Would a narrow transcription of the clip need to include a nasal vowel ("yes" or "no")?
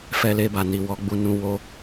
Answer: yes